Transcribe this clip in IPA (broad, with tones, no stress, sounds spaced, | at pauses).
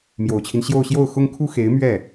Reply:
m j o˨˩ ʊ̯ t͡ɕʰ i˦ n ɕ j o˥˧ ʊ̯ ɕ j o˥˩ ʊ̯ x ʊ˥ ŋ kʰ u˥ x e˧˥ ɪ̯ m ɥ ɛ˥˩